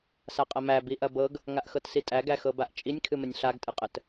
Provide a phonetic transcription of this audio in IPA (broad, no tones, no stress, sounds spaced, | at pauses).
s a qʼ ɐ m æ b i ʔ ɐ b ɤ ɡ | ŋ a ʔ x ɤ t s i tʼ æ ɡ æ x ɤ b a ʔ t͡ʃʼ i nʲ kʰ ɨ m ə nʲ ɬ a ɡ tʼ ɨ qʼ ə t